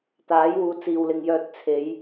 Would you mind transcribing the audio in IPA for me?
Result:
t̪ aː˨˥ j w uː˨˧ t͡s iː˨ w l ɪ˨ ŋ j œː˧ t̚ t͡sʰ e˨˧ j

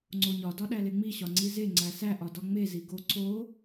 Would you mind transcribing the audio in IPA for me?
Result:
ŋ͡ǀ o ɲ ɒ d ɒ ɗ æ l e ŋ͡m i ɕ ɒ ŋ͡ǀ i z e ŋ͡ǀ æ s æ ʔ ɒ d ɒ ŋ͡m e z i ɡ o ǀ o

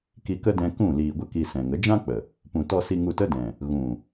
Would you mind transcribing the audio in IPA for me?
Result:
k i˧ k ə˦ d ɛ̃˧ k ũ˦˨ l iː˧ ɡʷ ə˦ k i˧ s ɛ̃˨ ŋ ə˨˦ d͡ʒ ã˦ k͡p ə˨ | p ũ˨ t ɔ˧ s i˧ ŋ u˧ t ə˦ d ɛ̃˨ | ɣ ũ˨

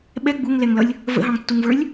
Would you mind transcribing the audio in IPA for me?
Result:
ɓ ɛ ɡ͡b u ŋ l ɛ ŋ l ʌ lʲ | v ə̰ ɦ ɑ̃ ŋ tː u ŋ v ə˞ lʲ

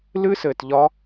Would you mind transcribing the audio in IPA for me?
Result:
l ɨ˦˥ s ɘː˧ t ʎ ɒ˦˥

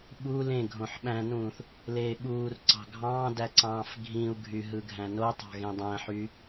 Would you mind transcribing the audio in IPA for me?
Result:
ɓ u l ẽ ɡʱ õ ħ ɓ æ̃ n ũː θ | l eː ɓ uː r ǀ ɑ̤ ɡʱ ɑ̃ː d æ ǀ ɑ̃ː f ɡʱ ĩ u̯ ɡʱ y ɦ ɯ ɡʱ æ̃ n o tˤ ɑ̤ ɣ ẽ dˤ æ̃ ħ y

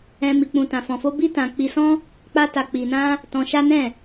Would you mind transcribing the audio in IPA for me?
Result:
ɛ̃˧ m i˧ k͡p ũ˧ t ã˧ f ɔ̃˧ f o˦ b i˦ t ã˧ k͡p i˧ s ɔ̃˦ | k͡p a˦ t a˧ k͡p i˧ n ã˦ | t ɔ̃˧ ʃ a˦ n ɛ̃˦˨

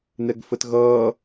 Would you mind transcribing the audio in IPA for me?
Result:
n ɛ ɡ f ə t ɣ ʌː

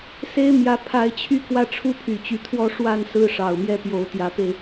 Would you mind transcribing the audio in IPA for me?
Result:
s e˦ ɪ̯ m j ä˨˦ pʰ a˨˦ ɪ̯ t͡ɕʰ y˥˨ k w ä˥˨ ʈ͡ʂʰ u˦ pʰ y˨˩ t͡ɕ y˨˦ t̪ʰ w ɔ˦ ʂ w a˥˨ n s ɹ̩˦ ʂ ɑ˨˩ ʊ̯ m j ɛ˦ p j o˨˦ ʊ̯ t̪ j ä˨˦ p e˧ ɪ̯

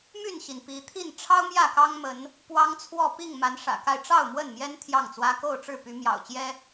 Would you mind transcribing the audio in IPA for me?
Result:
m y˥˨ n ɕ i˩ n p i˨˦ t̪ʰ i˥˨ n ʈ͡ʂʰ ɑ˦ ʊ̯ m j ä˥˨ k ɑ˦ ŋ m ə˨˦ n | p w ɑ˦ ŋ t͡sʰ w ɔ˥˨ p i˥˨ ŋ m a˨˦ n ʂ ä̰˨˩ k a˥˨ ɪ̯ ʈ͡ʂ ɑ˥˨ ʊ̯ m w ə˥˨ n m j ɛ˦ n t̪ʰ j ɑ˥˨ ŋ t͡s w ä˦ k o˥˨ ʊ̯ ʈ͡ʂ ɻ̩˥˨ p y˨˦ m j ɑ̰˨˩ ʊ̯ t͡ɕ j ɛ˦

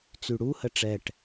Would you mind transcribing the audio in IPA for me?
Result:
t͡s y ɽ u h ə ʈ͡ʂ ɛ ʈ

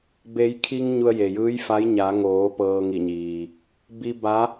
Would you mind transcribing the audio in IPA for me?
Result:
b e˩˧ j kʰ i˧ ŋ ɲ u˧ ə̯ j e˩ j ɯː˧˥ j f a˧˥ j ɲ a˩˧ ŋ oː˩˧ p ɤː˧ ŋ i˧˩ ɲ iː˩ | b i˧ b a˧˥

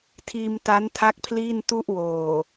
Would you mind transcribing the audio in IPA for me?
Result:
tʰ iː˧ m t a˦˥ n tʰ a˦˥ k̚ pʰ l iː˥˩ n t u˥˩ ʔ w oː˨˩

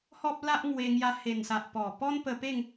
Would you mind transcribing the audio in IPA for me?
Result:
h ɔ˦ p̚ l a˦ ʔ ŋ w e˧ ŋ j a˧ h e˨˩ n s a˨ ʔ p ɔ˨˩ p ɔ˦ n p ə˧ p e˥˧ ŋ

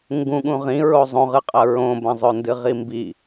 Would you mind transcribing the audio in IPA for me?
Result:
ŋ ɡ ũ ɠ ũ ʁ ĩ ɹ o zˤ õ ʁ ɨ qʼ ɐ ɹ õ b ɐ̃ zˤ ɵ n d ɨ ʁ i m b i

